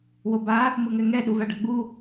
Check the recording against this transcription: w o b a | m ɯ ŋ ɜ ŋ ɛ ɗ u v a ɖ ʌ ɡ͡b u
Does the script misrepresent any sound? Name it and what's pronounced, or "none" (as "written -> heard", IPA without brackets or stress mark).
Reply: ɜ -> ɛ